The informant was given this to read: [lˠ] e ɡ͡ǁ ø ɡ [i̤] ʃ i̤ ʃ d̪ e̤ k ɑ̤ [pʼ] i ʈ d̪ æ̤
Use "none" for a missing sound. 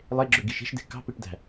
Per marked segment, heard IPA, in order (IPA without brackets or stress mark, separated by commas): lˠ, i, p